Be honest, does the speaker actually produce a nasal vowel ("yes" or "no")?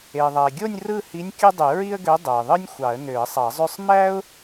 no